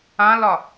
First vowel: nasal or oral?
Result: nasal